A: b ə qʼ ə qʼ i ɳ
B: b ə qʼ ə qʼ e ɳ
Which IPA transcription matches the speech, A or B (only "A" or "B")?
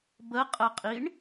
A